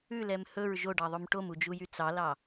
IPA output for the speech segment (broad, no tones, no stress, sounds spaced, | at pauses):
ʉ l ɛ m h ɵ ɹ ʒ o ɖ ɑ ðˤ o m ʈ o m u d͡ʒ u j y t͡s ɑ l ɑ